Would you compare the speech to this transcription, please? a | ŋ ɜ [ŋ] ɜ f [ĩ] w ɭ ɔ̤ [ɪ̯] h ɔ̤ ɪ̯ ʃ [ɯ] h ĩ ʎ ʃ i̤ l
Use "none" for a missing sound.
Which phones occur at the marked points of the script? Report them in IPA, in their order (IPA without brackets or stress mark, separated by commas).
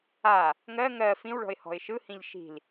ŋ, ĩ, ɪ̯, ɯ